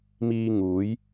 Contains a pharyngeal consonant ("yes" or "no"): no